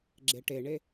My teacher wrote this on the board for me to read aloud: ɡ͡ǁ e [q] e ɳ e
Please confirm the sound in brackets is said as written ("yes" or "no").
no